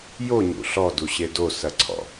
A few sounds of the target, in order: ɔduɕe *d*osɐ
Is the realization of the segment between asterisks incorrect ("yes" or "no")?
no